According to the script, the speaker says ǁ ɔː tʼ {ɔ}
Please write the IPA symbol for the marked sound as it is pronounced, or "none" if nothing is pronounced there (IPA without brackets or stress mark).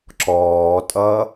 ʌ